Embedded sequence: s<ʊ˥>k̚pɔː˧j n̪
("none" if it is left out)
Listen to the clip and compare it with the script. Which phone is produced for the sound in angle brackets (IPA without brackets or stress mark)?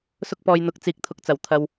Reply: ʊ˥